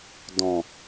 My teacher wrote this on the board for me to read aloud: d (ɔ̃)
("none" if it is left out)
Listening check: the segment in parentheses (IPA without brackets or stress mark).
ɔ̃